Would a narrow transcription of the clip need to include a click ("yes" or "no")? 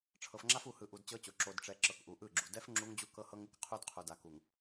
yes